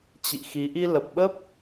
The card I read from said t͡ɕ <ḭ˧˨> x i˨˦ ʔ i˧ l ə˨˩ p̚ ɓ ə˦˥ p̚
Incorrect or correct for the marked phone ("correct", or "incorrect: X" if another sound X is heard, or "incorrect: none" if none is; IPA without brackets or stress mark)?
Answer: correct